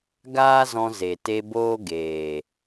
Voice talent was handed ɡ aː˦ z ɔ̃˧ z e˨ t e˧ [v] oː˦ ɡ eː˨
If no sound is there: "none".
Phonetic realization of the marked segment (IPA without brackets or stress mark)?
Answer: b